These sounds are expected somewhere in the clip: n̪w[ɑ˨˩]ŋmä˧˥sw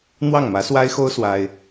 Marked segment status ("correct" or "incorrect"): incorrect